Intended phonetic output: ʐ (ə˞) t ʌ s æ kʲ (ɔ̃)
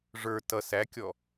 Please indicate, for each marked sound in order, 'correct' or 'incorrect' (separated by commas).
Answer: correct, incorrect